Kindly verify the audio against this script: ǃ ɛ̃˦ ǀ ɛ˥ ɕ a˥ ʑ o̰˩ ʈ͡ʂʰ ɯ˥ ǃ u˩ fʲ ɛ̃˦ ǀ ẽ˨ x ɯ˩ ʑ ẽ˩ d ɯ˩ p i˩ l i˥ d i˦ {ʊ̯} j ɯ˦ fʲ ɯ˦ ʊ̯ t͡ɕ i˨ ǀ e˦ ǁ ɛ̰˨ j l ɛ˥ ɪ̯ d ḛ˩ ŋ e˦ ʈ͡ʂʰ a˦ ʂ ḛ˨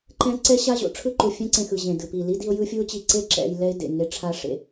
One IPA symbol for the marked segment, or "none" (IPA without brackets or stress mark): ʊ̯